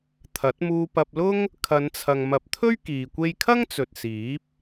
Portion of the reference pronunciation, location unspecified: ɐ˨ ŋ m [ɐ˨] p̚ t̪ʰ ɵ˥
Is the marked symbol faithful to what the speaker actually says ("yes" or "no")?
no